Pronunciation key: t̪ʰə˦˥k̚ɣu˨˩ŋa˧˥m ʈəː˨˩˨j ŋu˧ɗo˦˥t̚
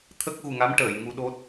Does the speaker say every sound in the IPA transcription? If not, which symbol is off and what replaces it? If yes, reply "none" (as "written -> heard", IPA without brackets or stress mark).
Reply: none